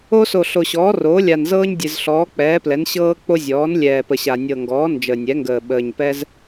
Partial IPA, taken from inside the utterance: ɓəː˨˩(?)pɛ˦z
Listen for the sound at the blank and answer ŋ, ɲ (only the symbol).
ɲ